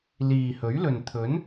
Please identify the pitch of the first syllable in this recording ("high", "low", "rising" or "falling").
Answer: low